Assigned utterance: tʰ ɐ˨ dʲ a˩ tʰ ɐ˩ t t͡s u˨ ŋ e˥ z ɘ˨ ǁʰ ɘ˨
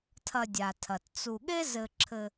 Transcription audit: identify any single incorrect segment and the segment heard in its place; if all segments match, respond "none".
ŋ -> ɠ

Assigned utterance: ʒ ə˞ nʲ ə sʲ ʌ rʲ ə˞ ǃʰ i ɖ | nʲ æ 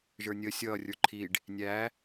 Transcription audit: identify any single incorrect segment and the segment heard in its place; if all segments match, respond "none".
none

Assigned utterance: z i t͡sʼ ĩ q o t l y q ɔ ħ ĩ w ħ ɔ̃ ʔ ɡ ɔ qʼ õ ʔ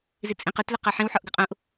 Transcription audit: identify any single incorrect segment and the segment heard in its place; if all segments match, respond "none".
ɔ̃ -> ɔ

